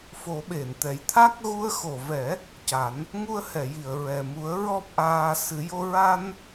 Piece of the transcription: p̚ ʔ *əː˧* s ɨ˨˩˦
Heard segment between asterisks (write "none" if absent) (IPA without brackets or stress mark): aː˧